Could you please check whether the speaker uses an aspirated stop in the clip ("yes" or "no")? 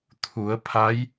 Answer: yes